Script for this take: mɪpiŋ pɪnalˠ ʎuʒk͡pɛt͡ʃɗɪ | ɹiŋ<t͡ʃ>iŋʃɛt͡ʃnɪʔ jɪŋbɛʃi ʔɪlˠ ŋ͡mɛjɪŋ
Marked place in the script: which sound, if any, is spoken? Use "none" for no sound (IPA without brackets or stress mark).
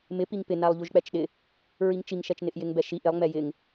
t͡ʃ